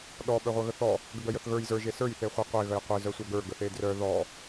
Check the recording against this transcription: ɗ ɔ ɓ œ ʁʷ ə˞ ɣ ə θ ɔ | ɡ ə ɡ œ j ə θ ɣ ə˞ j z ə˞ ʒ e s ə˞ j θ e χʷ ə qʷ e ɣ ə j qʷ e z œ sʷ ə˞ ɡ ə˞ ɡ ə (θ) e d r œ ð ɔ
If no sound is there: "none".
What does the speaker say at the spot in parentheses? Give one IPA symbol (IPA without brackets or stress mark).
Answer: θ